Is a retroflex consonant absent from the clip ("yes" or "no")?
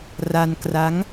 yes